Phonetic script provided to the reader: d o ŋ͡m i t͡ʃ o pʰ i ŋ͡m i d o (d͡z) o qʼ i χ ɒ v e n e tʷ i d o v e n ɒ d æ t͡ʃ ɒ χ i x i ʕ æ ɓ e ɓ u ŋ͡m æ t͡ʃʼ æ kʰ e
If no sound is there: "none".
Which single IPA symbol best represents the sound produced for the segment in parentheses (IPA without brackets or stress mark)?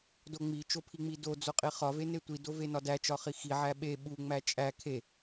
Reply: d͡z